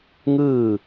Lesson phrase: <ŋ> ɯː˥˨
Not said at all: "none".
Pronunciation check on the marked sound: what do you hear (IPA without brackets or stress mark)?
ŋ